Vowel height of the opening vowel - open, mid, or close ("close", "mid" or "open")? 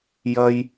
open